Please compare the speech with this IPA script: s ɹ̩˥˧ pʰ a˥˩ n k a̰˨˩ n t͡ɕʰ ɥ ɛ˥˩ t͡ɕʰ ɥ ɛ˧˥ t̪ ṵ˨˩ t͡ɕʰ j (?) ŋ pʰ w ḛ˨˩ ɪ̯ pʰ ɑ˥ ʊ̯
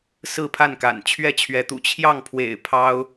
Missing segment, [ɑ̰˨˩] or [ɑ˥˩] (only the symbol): ɑ˥˩